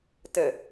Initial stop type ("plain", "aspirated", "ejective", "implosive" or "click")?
plain